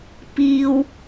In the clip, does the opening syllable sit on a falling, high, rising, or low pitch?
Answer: high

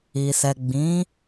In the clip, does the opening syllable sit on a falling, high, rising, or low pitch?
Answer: low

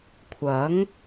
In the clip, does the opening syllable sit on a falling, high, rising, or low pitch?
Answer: rising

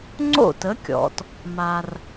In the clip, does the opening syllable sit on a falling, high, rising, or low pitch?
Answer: falling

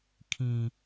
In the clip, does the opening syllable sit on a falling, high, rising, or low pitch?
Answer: low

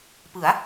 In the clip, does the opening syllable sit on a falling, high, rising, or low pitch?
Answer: rising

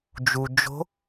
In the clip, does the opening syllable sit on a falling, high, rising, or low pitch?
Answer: low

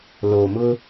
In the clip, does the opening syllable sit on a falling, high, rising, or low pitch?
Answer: low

